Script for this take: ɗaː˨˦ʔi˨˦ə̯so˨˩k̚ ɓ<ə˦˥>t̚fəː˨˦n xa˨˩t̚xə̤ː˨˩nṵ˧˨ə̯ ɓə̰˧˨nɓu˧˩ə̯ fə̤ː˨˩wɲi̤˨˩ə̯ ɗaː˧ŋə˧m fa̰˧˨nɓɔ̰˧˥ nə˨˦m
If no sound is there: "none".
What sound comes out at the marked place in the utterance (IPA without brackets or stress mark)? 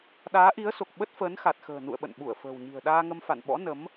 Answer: ə˦˥